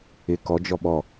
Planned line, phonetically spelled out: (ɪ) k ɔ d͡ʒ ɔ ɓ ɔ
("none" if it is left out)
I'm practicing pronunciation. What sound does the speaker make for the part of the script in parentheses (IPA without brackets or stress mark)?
ɪ